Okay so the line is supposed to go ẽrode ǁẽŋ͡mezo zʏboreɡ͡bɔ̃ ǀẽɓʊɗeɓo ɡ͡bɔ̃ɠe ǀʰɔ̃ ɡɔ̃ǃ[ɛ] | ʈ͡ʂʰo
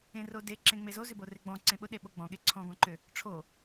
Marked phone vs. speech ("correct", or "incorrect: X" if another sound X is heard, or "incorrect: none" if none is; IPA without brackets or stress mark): incorrect: ʏ